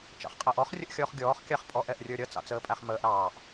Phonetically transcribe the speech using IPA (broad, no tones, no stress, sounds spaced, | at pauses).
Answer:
t͡ʃ ɑ̰ χ qʼ æ ʔ ɔ χ rʲ ə ʔ xʲ ɔː χ ɡʲ ɔː χ kʲ ɑ χ pʼ ɔ ʔ ɛ ʔ rʲ ə˞ ɾʲ ʌ t͡s ɑ̰ t͡s əː pʼ æ χ m əː ʔ ɾ ɑː ʔ